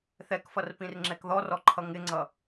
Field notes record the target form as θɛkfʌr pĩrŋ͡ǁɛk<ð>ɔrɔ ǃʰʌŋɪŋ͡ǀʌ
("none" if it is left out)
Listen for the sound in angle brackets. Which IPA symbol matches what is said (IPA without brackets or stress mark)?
ð